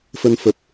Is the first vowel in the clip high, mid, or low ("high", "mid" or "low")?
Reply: mid